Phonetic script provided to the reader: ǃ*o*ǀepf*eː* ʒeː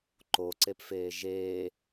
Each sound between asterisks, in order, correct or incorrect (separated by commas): correct, correct